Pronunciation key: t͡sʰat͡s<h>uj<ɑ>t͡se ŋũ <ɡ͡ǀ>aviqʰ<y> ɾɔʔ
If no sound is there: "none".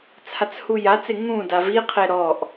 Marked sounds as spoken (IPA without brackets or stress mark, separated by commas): h, a, d, e